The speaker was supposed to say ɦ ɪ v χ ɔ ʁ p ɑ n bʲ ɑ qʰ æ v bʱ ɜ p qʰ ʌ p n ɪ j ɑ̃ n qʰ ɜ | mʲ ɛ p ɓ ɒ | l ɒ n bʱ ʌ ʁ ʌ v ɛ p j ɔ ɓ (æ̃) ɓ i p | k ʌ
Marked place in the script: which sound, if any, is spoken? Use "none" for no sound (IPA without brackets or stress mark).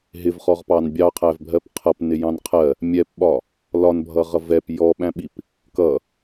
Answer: æ̃